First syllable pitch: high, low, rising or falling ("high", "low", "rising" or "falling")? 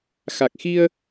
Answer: low